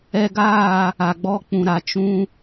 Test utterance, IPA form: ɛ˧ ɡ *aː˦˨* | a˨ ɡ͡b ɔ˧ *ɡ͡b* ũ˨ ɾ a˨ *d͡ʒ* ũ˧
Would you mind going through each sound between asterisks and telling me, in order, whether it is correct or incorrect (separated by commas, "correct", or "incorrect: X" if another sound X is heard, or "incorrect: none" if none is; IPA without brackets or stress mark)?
correct, incorrect: k͡p, incorrect: t͡ʃ